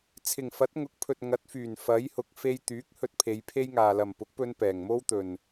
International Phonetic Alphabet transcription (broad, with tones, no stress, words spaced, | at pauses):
t͡sʰɪ˨˩ŋfɐ˨˥t̚ ŋʊ˨˥k̚pʰɵ˨t̚ŋɐ˨˥t̚ fyː˨˩n fɐ˨˥jhʊ˨k̚ fe˧jt̪yː˨˥k̚ hɵ˧t̚pʰe˨˧jpʰe˥jŋaː˨ lɐ˨˩mpʊ˨˥k̚pɵ˧n pɛː˨˩ŋmo˥wt̪ɵ˨n